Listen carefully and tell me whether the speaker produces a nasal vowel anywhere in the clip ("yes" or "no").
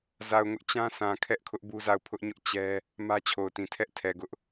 yes